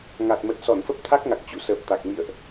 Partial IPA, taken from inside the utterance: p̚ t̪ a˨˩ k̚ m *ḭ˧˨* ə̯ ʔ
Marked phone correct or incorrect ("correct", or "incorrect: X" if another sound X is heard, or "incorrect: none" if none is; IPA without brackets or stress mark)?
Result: correct